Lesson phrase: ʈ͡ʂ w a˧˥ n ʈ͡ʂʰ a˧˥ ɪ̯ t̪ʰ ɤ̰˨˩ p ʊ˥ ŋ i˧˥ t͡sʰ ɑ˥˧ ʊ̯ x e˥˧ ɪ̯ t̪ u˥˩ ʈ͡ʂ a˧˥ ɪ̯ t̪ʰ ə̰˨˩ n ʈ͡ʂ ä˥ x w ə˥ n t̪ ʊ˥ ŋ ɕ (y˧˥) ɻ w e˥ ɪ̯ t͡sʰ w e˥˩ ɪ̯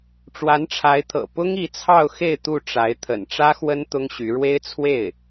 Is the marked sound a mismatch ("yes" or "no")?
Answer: no